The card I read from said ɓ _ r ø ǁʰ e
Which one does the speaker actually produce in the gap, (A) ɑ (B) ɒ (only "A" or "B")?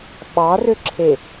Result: A